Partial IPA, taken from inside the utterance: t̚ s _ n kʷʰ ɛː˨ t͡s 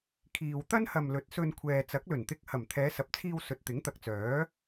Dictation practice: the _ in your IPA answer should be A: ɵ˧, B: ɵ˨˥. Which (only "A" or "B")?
A